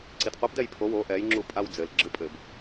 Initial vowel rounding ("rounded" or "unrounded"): unrounded